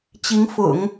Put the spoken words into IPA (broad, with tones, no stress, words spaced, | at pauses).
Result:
t͡ɕi˧˥ŋfʊ̰˨˩˦ŋ